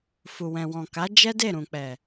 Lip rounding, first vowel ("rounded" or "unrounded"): rounded